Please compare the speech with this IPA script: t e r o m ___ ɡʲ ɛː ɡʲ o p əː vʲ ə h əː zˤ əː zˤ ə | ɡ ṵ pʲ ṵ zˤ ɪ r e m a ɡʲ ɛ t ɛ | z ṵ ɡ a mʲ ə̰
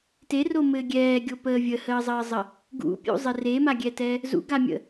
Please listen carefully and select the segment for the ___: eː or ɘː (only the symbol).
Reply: ɘː